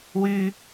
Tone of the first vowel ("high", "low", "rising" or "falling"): high